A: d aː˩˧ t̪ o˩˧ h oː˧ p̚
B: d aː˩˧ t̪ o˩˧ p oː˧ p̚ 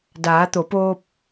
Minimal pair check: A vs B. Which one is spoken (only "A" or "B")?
B